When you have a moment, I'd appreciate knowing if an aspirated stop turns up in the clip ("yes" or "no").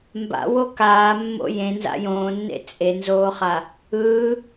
no